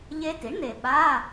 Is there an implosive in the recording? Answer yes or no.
yes